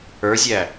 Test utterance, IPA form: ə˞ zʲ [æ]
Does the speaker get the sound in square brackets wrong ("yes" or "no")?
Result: no